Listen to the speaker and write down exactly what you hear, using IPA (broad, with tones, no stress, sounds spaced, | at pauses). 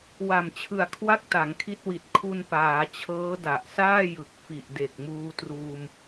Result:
w a˨˩ m t͡ɕʰ ɯ˨˩ a̯ kʰ w a˥˩ k̚ t a˩˦ ŋ kʰ i˦˥ t̚ w i˨˩ t̚ kʰ u˧ n p aː˩˦ t͡ɕʰ ɤː˦˥ d a˨˩ ʔ s aː˥˩ j ɯ˨˩ k̚ f i˨˩ ʔ d e˨˩ k̚ m uː˧ t r uː˧ m